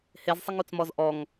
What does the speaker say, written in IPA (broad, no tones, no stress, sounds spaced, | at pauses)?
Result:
h e z sˤ ɪ ŋ u t͡s m ɔ z ʔ ɔ ŋ